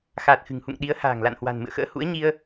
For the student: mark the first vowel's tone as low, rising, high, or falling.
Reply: low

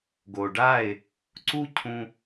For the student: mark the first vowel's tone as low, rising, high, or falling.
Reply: low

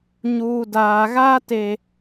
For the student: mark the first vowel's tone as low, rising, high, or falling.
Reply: low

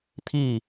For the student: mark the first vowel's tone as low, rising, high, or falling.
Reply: falling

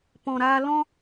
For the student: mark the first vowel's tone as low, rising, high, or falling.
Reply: low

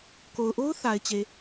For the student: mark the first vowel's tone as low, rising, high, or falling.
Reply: low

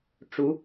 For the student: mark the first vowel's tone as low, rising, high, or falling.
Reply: rising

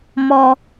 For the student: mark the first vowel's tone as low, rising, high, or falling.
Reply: high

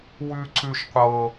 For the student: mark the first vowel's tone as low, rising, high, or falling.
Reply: high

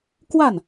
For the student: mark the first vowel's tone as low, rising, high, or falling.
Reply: falling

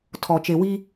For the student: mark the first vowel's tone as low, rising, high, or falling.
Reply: low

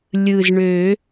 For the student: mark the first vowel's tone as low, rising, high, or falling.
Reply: low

